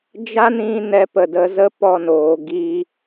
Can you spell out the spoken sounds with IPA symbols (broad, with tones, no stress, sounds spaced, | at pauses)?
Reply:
d͡ʒ a˦ n ĩ˧ n ɛ˧ p ə˨ d ə˨˦ z ə˦ p ɔ˧ n oː˨ ɡ iː˧